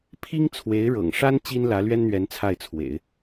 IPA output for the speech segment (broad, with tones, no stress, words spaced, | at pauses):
pʰi˥ŋ t͡sʰwe˧˥ɪ̯ɻɤ̰˨˩ŋʂa˥n t͡ɕi˥nlä˧˥ lɥɛ˥nn̪ɥɛ˧˥n t͡sʰa˥˩ɪ̯t͡sʰwḛ˨˩˦ɪ̯